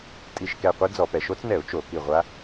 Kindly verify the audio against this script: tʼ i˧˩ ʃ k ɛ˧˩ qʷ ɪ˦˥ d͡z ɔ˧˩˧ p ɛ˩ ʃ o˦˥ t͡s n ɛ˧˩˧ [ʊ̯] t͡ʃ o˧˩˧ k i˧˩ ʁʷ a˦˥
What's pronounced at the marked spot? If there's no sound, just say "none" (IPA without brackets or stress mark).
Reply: ʊ̯